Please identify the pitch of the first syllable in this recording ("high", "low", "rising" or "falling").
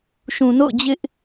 low